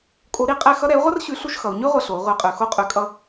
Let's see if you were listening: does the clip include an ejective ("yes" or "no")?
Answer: yes